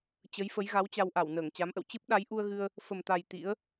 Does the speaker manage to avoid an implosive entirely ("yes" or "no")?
no